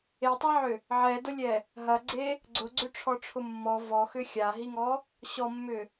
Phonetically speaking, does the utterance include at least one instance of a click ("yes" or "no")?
yes